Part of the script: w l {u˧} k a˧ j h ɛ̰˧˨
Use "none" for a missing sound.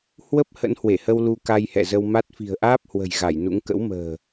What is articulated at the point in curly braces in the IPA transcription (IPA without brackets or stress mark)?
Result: u˧